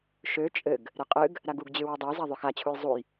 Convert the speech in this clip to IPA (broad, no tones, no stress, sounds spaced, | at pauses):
ʃ ø t͡ʃʼ ɘ ɡ | ɾ ɘ qʼ ɨ ɡ | ɾ a ɡ u ɡ d͡ʑ ɨ w i dˤ ɘ j z a ðˤ ø x a t͡ɕʰ u j zˤ u j